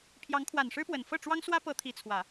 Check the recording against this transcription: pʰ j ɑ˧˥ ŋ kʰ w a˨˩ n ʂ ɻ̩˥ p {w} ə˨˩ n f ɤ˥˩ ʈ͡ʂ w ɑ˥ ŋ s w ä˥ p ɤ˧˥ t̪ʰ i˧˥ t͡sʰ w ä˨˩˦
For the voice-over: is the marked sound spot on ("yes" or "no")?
yes